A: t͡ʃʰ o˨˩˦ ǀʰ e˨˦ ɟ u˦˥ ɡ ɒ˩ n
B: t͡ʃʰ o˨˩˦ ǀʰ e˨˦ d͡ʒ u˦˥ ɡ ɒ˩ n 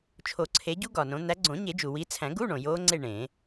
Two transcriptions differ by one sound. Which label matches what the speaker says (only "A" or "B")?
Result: A